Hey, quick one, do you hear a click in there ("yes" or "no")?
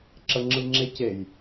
yes